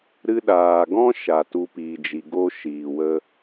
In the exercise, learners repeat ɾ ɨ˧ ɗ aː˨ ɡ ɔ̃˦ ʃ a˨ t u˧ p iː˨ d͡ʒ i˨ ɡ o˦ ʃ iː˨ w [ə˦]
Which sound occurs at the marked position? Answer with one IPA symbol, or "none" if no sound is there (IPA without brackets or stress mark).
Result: ə˦